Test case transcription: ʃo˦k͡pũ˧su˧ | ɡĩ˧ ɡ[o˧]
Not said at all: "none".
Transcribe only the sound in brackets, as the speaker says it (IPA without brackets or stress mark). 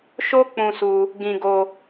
o˧